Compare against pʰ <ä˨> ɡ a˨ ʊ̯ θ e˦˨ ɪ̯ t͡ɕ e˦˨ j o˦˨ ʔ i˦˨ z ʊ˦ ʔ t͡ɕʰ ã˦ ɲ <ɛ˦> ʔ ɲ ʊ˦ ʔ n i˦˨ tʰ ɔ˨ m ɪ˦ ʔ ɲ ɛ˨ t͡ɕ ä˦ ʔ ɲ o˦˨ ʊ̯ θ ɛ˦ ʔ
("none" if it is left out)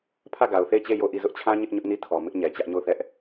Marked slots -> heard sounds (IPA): ä˦˨, ɪ˦

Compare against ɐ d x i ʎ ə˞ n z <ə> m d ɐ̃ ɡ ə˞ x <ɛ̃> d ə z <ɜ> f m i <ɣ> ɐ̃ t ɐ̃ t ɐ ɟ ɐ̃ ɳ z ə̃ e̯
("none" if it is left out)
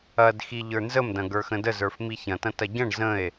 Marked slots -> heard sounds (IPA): ə, ə̃, ə˞, ç

